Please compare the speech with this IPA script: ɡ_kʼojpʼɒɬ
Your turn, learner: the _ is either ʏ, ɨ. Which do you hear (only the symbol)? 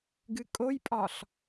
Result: ɨ